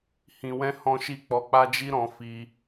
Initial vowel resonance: nasal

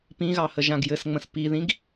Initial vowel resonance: nasal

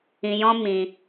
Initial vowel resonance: nasal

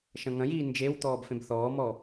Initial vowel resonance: nasal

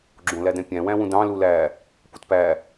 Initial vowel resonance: nasal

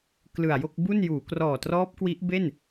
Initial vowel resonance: oral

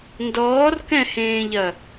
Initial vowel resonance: oral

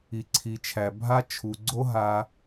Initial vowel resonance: oral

